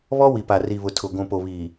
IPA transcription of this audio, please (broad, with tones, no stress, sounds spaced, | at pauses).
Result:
β ɔ˦ w i˨ p a˨ r i˨ β ʊ˨ tʰ ʊ˨ ɡʷ ũ˨ p o˨ β iː˨